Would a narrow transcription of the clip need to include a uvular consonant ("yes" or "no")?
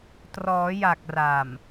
no